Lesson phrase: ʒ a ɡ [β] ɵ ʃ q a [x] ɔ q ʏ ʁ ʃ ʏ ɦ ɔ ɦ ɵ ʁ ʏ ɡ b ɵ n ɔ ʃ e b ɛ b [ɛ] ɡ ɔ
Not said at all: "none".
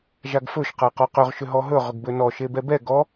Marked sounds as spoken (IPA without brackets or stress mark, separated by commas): f, q, ɛ